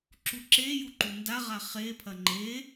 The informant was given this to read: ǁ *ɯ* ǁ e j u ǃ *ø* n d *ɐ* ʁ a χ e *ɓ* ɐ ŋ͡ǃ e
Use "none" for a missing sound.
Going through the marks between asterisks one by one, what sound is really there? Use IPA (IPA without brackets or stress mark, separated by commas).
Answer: u, u, a, pʰ